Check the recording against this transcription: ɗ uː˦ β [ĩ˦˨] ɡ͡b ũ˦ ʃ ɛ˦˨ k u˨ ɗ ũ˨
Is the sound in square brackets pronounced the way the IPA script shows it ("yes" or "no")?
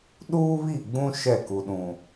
no